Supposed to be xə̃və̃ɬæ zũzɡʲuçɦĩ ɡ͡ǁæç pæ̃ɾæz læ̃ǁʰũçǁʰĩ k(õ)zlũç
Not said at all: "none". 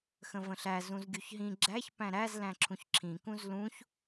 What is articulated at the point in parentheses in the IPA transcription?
ũ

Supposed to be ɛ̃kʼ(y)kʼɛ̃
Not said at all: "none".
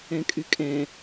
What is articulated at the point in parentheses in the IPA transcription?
y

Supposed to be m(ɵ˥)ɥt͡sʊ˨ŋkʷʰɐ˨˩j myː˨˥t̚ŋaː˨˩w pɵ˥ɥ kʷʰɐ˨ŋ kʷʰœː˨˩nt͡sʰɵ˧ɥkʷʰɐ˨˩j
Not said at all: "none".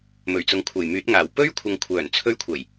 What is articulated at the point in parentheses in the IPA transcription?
ɵ˨˩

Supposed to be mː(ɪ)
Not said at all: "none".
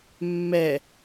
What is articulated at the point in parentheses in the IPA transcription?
ɛ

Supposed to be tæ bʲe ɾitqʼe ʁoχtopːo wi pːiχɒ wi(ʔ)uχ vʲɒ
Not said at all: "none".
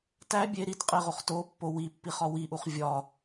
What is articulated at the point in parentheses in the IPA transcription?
ʔ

